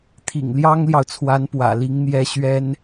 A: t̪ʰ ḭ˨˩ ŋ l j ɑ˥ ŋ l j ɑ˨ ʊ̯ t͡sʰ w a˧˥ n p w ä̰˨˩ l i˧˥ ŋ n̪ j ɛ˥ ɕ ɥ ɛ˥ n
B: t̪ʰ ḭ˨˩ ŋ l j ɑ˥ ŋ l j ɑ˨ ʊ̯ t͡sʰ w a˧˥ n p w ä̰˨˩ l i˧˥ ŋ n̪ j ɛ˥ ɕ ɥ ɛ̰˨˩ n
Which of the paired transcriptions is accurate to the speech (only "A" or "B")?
A